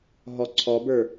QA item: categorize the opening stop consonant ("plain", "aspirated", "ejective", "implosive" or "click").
click